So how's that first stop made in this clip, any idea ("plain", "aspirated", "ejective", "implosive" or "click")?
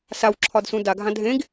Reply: click